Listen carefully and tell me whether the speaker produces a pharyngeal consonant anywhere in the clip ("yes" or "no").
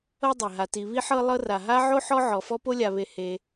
yes